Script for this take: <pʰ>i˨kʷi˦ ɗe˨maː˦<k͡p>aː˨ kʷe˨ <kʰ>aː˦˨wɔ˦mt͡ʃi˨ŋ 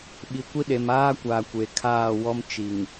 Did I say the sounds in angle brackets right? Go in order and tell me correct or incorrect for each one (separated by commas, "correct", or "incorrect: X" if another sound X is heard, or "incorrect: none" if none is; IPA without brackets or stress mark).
incorrect: ɓ, incorrect: kʷ, correct